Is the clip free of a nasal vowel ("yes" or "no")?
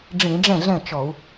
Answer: no